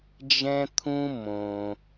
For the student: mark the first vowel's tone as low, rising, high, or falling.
high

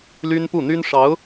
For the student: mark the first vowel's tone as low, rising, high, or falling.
high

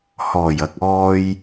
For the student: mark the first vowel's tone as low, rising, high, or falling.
low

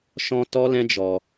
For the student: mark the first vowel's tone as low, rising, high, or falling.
high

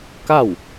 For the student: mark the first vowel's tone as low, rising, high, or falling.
falling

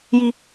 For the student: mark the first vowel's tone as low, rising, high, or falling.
high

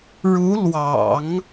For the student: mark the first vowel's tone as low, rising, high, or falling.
rising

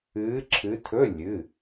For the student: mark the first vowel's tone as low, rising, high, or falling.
rising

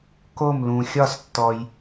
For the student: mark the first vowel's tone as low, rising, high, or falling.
falling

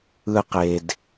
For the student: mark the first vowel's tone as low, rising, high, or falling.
high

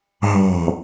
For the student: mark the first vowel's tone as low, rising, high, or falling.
falling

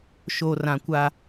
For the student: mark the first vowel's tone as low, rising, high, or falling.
low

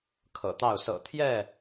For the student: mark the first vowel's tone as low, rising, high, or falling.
low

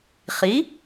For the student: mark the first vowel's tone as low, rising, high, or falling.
rising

